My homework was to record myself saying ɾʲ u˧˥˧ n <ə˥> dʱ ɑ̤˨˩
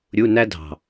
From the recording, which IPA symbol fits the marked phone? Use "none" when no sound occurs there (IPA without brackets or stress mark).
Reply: æ˥